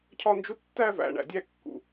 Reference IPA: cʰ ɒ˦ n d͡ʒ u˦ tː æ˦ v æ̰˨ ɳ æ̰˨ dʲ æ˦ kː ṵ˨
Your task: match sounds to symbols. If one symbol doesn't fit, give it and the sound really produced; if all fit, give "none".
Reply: none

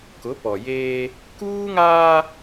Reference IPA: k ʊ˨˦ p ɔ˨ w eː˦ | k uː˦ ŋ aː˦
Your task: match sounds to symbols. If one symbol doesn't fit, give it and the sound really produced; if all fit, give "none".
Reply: w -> j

